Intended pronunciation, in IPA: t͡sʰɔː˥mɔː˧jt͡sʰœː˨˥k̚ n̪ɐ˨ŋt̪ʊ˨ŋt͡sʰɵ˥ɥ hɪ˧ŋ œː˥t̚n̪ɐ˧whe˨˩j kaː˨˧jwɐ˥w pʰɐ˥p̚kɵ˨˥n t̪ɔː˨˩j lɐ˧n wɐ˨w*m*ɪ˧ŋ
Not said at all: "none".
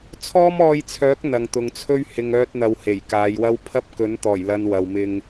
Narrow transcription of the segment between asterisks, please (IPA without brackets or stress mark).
m